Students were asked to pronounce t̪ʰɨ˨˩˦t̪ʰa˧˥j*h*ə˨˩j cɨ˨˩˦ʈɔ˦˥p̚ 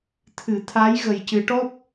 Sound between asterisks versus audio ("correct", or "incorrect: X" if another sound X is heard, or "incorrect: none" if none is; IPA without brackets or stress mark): incorrect: ɣ